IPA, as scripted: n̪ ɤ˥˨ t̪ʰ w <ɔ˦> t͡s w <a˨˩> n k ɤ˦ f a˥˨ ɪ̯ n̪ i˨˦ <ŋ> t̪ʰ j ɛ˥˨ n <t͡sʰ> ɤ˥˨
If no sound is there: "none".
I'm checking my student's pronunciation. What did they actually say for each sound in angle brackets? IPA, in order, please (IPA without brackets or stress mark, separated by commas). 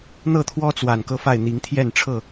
ɔ˦, a˨˩, ŋ, ʈ͡ʂʰ